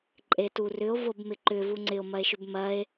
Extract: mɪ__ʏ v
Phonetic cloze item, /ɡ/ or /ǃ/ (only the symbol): ǃ